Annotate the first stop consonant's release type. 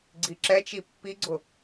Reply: click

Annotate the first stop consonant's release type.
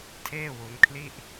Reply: aspirated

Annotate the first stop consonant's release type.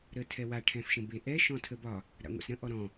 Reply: aspirated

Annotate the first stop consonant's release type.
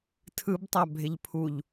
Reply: aspirated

